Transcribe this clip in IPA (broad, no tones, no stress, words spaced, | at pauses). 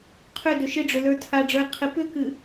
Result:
qʰʏdʏ ʃɪɖ͡ʐʏlə˞ tʰaɖ͡ʐə˞e̯ qʰɪ pʏkɨ